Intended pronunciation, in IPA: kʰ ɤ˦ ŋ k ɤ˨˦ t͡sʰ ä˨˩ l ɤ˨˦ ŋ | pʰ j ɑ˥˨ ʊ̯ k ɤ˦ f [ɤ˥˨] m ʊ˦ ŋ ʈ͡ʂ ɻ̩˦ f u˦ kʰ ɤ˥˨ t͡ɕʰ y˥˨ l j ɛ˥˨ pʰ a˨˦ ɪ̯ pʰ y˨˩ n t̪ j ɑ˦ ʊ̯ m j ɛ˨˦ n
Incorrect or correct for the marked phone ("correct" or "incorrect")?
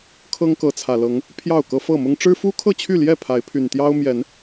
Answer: correct